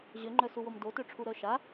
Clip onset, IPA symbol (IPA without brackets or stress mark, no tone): ʑ